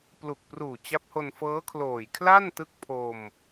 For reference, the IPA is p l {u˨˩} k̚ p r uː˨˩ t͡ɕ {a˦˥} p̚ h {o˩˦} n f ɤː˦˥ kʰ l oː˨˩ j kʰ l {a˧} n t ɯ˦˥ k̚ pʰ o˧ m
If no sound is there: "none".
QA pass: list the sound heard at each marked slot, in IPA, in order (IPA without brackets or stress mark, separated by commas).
u˨˩, a˦˥, o˧, a˥˩